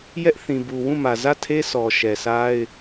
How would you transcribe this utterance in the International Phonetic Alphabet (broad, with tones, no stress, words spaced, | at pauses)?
jɛ˦ʔθĩ˨bu˨ wũ˦˨mä˨zä˦˨tʰe˦ sʰɔ˨ʃɛ˨sa˦ɪ̯